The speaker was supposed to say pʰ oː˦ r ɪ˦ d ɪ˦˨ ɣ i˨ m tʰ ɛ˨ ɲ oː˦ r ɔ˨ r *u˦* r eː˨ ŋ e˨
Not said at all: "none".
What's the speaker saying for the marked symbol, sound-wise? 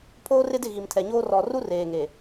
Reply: u˦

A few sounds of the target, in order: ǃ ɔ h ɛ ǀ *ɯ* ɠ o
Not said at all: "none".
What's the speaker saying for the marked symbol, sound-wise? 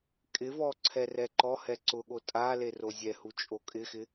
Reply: ʊ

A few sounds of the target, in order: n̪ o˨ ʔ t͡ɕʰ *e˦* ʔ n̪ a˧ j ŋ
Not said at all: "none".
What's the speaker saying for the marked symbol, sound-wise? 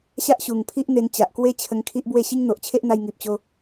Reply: e˦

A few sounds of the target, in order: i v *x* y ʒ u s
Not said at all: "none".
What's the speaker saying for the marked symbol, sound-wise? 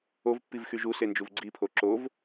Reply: x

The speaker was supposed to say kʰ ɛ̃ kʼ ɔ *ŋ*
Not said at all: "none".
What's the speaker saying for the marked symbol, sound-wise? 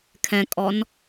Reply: n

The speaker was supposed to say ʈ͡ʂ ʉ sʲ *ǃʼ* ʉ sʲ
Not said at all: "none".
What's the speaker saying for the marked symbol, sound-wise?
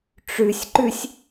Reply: ǃ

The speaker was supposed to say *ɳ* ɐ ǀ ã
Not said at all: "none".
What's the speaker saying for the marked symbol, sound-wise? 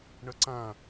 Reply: ɳ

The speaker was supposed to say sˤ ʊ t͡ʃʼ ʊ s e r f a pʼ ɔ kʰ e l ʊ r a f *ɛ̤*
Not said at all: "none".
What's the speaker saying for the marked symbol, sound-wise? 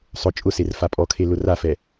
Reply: ɛ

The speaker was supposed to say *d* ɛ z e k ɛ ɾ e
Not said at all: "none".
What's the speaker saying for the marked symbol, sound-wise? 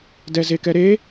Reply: d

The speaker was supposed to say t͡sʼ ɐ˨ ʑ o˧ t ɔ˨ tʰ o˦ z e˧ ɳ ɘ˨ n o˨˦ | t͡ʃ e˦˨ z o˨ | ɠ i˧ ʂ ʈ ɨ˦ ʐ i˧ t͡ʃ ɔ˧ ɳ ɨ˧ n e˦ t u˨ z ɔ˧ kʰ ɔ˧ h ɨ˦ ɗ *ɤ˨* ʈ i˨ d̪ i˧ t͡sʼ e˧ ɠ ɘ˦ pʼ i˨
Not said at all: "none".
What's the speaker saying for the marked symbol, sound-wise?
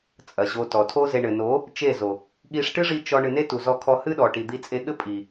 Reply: ɔ˨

